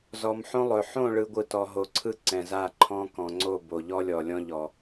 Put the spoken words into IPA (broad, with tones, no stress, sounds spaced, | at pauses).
z ɔ˨ m ħ õ˦ lˠ ɵ˨ ħ õ˦˨ ɭ ɯ˨ ɡʷ ɯ˨ t ɔ˨ ɦ o˨ ǀʰ ɯ˦ ǀ ɛ̃˨ z a˦˨ ǃʰ ɔ̃˦ k ɔ̃˨ ŋ͡ǀ o˦˨ b o˨ ʎ ɔ˦ lʲ ɔ˨ lʲ ɔ̃˦ ʎ ɔ˨